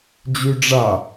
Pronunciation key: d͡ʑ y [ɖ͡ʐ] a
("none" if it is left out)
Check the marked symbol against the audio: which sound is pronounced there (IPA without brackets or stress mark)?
ɖ͡ʐ